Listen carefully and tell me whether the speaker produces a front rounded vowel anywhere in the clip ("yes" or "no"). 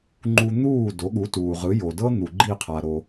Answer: no